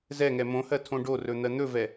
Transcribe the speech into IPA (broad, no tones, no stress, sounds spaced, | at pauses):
z ɛ ŋ ɛ m õ h ɜ tʰ õ ɖ o r ɵ n̪ ɜ n̪ ɵ v ɛ